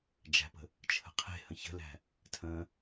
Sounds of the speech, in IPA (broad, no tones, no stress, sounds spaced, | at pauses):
d͡ʒ æ̤ p ə̤ | t͡ʃʰ ə̤ qʰ e̤ h ə̃ ç ə̤ l æ̤ | tʰ ə̃